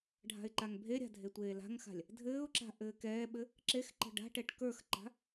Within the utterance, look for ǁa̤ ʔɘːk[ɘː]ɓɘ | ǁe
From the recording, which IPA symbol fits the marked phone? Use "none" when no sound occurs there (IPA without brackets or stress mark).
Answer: ɛː